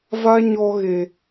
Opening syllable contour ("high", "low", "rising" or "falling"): high